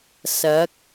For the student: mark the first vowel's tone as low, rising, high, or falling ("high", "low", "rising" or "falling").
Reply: rising